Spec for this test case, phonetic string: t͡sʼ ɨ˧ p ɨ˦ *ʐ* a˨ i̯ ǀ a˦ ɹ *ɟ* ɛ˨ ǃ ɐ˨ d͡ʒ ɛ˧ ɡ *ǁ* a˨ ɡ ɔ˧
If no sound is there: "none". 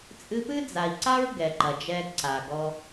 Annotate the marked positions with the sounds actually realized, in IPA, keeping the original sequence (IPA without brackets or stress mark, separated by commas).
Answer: d͡z, ɡ, ǀ